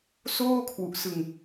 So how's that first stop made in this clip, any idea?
aspirated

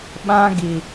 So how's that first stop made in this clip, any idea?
implosive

